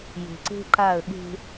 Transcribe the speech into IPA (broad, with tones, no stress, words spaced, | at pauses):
je̤˨ǀe̤˦ǃa˦˨ə̯ɠe̤˦